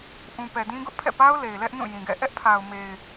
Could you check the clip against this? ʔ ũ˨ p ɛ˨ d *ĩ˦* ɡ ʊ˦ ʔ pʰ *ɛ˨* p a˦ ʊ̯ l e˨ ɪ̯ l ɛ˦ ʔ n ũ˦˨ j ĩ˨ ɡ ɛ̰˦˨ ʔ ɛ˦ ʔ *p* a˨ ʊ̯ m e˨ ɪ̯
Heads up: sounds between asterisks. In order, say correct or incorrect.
correct, incorrect: ɛ̰˦˨, incorrect: pʰ

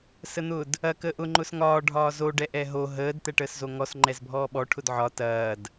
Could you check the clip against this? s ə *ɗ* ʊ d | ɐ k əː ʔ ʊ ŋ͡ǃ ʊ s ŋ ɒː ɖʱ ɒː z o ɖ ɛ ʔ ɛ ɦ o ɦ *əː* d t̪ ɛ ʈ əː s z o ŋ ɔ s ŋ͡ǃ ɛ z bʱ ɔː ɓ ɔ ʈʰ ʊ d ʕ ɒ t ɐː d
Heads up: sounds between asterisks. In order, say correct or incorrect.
incorrect: n̪, correct

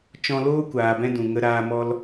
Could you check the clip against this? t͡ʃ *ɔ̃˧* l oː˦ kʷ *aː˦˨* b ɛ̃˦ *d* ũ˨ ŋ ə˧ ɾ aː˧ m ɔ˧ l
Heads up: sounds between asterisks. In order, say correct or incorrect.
correct, incorrect: aː˨, correct

